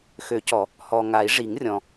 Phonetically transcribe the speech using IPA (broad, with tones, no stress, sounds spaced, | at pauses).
x ø˨˩˦ c ɔ˨˩˦ | h ɔ˨ ŋ a˨˩˦ i̯ ʐ i˨˩˦ ŋ rʲ ɔ̃˨